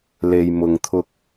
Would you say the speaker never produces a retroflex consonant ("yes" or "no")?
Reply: yes